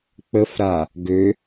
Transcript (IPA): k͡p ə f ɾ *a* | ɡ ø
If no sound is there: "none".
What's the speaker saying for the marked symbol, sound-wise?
a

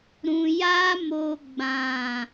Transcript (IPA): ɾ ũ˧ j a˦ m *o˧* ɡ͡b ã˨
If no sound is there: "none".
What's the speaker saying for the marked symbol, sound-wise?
o˧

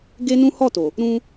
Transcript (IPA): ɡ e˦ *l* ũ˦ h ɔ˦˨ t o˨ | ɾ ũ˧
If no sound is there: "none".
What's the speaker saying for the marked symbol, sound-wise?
n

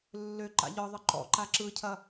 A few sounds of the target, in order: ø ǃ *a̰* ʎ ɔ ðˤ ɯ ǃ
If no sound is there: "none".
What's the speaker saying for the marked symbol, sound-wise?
a̰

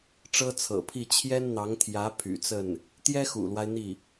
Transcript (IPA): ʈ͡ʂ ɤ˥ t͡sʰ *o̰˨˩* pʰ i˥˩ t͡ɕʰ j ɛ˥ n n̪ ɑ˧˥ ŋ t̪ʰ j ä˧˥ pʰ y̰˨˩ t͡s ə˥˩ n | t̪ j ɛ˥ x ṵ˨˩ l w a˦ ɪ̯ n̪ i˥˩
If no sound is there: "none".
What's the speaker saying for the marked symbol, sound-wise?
ɤ̰˨˩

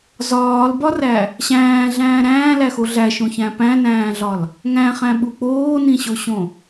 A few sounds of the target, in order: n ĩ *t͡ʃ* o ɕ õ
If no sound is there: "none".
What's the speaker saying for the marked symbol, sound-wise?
ɕ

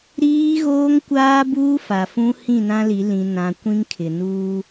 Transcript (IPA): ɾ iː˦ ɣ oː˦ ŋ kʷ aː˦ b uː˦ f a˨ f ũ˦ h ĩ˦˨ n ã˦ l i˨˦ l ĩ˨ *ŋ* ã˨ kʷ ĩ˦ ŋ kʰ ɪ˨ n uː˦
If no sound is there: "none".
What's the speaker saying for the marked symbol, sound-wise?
n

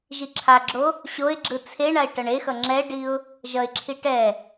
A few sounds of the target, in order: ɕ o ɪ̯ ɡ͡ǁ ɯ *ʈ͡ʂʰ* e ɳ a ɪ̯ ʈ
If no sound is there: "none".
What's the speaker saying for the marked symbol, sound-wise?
t͡sʰ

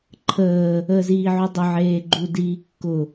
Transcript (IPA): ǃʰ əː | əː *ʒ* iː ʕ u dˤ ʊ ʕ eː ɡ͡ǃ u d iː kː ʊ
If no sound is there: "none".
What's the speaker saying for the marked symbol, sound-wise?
z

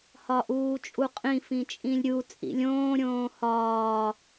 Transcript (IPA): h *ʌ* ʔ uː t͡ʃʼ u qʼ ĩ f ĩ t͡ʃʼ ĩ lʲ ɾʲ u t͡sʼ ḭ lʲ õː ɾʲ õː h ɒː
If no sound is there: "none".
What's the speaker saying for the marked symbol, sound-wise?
ɒ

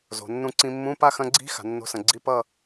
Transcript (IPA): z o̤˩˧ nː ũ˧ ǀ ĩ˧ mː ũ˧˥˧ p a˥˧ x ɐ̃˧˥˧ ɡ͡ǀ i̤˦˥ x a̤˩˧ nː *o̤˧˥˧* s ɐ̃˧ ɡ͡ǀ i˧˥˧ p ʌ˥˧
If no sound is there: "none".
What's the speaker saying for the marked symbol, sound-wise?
o̤˧˥˧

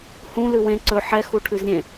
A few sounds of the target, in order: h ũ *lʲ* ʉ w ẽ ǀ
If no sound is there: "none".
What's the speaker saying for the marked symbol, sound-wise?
l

